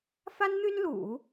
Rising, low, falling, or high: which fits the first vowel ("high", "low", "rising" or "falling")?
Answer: high